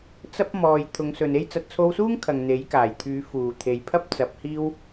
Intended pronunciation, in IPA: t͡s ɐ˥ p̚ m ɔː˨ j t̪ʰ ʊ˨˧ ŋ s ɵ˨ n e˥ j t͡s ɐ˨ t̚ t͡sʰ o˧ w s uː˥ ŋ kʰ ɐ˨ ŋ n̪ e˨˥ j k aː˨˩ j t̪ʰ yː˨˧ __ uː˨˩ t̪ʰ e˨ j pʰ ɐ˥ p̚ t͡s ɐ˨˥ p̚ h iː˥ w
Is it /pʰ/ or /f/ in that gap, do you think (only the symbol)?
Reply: f